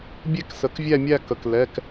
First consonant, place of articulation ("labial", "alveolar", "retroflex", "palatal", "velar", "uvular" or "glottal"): labial